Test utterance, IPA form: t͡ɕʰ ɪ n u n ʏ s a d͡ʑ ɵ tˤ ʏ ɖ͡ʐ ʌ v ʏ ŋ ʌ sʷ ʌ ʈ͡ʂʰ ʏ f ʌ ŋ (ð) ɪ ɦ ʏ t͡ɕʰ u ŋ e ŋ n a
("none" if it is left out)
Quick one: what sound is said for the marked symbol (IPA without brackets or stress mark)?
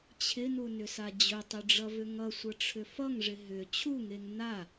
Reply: ʐ